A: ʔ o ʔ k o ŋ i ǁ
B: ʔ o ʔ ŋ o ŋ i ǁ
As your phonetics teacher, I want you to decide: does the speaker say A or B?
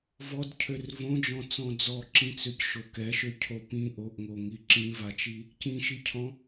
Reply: B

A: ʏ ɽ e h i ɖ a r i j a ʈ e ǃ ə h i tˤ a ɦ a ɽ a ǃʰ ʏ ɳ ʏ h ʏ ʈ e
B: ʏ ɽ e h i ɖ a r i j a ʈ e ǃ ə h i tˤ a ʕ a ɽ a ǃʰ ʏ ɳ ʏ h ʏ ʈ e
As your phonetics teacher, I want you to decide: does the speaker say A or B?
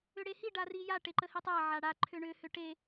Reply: B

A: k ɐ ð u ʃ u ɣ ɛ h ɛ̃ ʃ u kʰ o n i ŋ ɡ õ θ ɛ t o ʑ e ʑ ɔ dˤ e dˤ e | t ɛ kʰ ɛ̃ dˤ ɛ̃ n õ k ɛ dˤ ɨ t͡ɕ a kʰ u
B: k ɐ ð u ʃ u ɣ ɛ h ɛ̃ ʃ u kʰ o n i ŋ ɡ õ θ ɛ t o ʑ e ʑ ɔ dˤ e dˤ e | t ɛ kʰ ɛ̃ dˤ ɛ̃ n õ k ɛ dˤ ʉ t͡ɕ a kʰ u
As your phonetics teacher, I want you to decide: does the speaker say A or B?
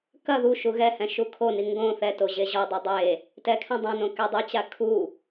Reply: A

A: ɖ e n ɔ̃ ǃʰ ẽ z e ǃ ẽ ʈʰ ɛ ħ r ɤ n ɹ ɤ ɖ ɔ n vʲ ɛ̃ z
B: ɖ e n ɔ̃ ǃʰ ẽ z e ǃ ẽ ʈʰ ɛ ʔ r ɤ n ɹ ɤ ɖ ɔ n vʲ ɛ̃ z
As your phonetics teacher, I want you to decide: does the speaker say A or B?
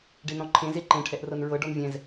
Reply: B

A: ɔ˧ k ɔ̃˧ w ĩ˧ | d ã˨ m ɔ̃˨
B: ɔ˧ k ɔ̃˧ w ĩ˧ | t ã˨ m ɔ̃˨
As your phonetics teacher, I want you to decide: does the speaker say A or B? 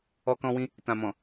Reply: B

